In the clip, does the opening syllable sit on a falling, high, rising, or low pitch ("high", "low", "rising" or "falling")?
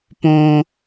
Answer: high